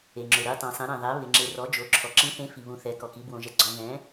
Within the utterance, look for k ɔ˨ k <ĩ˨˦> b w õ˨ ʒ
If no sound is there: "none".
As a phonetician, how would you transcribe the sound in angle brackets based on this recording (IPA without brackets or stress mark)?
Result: i˨˦